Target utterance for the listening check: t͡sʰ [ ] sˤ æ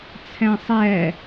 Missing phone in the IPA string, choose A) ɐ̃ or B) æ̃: B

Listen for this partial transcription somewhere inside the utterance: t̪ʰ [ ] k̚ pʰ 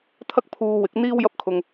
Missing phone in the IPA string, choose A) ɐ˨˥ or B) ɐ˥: B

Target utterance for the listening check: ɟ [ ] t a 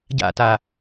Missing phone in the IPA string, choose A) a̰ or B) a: A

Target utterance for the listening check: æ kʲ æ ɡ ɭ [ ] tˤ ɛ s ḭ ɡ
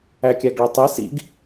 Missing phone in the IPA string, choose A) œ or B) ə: A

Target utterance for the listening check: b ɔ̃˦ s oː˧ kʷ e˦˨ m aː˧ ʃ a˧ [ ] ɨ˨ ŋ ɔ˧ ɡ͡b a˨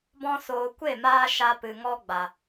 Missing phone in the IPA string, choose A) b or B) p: B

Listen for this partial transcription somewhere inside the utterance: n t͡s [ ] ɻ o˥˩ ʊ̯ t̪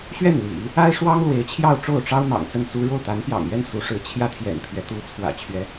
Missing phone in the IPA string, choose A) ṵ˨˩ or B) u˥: B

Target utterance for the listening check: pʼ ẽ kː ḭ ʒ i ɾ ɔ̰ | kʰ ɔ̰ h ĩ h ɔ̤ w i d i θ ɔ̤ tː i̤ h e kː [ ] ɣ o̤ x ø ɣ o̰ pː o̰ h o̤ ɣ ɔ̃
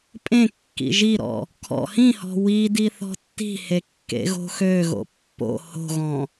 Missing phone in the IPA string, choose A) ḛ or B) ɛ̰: A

